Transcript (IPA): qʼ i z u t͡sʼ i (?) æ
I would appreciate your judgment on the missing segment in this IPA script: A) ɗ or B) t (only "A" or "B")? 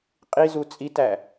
B